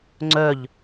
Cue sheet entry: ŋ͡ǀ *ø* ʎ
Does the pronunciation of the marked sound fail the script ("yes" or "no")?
yes